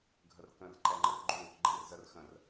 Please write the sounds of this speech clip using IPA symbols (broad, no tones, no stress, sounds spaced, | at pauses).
ɡʱ ə r k ə̃ r ǃ ɛ ŋ͡ǃ ə r ɡ͡ǃ u | ɡ͡ǃ ɛ̃ r z ə r x ə̃ r